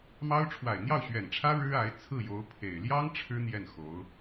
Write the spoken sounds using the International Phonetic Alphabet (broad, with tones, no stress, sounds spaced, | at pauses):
m ɑ˥ ʊ̯ ʈ͡ʂʰ w a˨˩ ɪ̯ n̪ j ɑ˥˩ ʊ̯ ɕ ɥ ɛ˨˩ n ʈ͡ʂʰ ä˥ ɻ ɻ̩˥ a˧˥ ɪ̯ t͡sʰ ɹ̩˥˩ j o˧˥ ʊ̯ pʰ e˨˩ ɪ̯ l j ɑ˥ ŋ ʈ͡ʂʰ ɻ̩˥ n̪ j ɛ˥˩ n x o˧˥ ʊ̯